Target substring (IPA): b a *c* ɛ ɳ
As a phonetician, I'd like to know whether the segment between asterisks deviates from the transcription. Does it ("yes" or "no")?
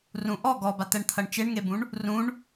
yes